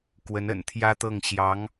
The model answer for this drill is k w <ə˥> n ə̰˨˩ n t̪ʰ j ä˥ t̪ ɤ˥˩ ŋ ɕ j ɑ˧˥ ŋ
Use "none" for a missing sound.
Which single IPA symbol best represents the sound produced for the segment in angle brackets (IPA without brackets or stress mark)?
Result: ə˧˥